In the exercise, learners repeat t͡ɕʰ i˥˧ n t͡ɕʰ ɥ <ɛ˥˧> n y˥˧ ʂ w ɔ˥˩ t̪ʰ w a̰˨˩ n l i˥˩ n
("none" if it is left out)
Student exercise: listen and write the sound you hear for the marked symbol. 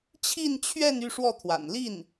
ɛ˥˧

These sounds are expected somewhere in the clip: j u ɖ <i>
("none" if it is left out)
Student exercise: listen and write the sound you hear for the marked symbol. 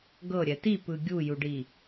i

